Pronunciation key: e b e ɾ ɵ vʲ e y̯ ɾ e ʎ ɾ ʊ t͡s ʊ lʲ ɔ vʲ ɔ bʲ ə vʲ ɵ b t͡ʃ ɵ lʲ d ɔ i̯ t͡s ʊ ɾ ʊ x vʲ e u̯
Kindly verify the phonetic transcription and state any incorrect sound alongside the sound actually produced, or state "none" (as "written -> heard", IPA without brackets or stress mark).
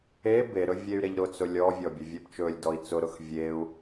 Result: none